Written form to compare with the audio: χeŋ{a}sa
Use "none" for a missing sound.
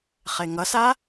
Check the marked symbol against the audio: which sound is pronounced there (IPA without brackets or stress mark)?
ʌ